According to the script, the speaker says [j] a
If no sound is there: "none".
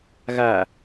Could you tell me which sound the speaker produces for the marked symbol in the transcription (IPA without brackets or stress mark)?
ɣ